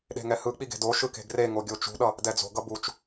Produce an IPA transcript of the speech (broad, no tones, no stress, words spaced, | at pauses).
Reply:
ɗe̤ŋɛhɯk͡pi ɡe̤doʃɯ ke̤ɡreŋo ɡʲot͡ʃṳɗʌ | dɛd͡zo̤ɡʌ but͡ʃ